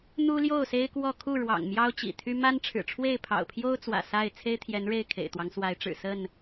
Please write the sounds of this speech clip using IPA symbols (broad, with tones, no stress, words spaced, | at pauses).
n̪u˦ljo˥˨ʊ̯se˦ɪ̯ kwɔ˥˨ kʰu˥˨ɻwɑ̰˨˩ŋ mjɑ˦ʊ̯t͡ɕḭ˨˩t̪ʰy˦ ma˦nʈ͡ʂʰɻ̩˨˩ʈ͡ʂʰwe˥˨ɪ̯ pʰɑ̰˨˩ʊ̯pʰjo˦ʊ̯t͡swä̰˨˩ sa˥˨ɪ̯ t͡sʰe˦ɪ̯t̪ʰjɛ˨˦n ɻe˥˨ɪ̯kʰḛ˨˩ɪ̯t̪wɑ˦ŋ swa˨˦ɪ̯ʈ͡ʂɻ̩˨˩ sə˥˨n